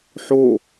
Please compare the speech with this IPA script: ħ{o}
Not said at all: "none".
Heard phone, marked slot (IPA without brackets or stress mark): o